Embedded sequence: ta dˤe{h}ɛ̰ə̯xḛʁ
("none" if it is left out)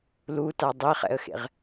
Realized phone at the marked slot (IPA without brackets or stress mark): χ